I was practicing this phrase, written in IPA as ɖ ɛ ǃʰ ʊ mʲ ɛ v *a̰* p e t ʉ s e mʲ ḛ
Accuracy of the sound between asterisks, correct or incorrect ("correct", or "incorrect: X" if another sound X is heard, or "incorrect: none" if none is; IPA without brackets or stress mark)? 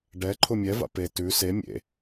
correct